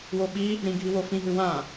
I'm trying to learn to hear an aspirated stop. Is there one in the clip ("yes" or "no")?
no